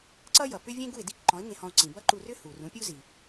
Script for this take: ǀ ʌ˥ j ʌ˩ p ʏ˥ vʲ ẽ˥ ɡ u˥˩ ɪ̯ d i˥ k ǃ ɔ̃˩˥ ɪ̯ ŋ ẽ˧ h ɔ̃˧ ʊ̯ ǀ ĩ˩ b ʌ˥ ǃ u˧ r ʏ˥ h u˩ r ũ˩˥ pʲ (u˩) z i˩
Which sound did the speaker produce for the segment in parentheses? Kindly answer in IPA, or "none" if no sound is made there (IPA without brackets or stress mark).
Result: u˥